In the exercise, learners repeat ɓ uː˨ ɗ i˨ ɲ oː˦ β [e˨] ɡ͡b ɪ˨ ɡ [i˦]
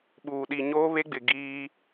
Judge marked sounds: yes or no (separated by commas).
no, no